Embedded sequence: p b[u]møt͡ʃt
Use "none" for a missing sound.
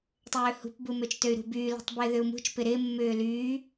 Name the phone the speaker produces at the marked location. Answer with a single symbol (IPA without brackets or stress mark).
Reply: u